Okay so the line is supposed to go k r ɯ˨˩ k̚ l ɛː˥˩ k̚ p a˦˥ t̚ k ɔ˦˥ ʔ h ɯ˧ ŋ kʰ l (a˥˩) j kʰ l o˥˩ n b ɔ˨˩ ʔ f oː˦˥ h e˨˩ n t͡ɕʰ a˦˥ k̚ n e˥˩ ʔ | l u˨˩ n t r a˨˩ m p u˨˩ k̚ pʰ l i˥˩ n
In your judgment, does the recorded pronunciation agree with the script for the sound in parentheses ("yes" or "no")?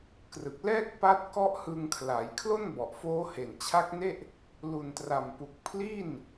no